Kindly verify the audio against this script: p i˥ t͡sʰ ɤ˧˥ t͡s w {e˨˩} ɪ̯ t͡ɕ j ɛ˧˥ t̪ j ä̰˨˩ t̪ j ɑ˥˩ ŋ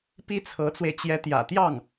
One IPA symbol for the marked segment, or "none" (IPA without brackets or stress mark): e˧